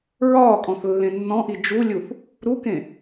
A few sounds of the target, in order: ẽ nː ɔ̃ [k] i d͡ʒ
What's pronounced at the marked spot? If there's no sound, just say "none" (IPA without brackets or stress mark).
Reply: ʔ